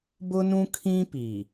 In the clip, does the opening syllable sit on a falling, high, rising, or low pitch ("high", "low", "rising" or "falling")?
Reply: high